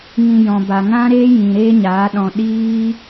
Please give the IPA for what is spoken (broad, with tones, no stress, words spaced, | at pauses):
ŋĩ˧ jɔ̃˨ba˨ ŋã˦ɾeː˦jĩ˨ ɾeː˦ɲaː˨˦ɗɔ̃˧ ɗiː˦